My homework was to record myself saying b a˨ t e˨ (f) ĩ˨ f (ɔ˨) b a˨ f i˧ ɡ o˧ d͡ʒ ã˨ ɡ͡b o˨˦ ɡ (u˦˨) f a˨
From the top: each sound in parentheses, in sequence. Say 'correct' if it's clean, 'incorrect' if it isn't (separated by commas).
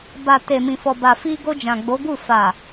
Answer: incorrect, correct, correct